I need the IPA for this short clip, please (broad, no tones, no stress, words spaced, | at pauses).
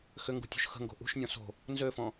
xʏŋɡṳtʲṳʃ xə̤ŋɡo̤ ʔṳʃnʲɔ̃ so̤ | nzøfɔ̃